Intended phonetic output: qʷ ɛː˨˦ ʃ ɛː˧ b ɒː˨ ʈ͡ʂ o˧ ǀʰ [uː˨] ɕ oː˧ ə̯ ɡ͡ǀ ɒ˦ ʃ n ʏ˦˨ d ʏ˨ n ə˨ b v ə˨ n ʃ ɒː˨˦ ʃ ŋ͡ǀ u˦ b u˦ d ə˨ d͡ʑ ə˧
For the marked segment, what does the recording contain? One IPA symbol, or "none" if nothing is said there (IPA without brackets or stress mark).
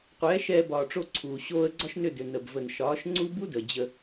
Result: uː˨